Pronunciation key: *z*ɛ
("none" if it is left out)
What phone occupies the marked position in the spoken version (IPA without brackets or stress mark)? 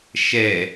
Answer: ʃ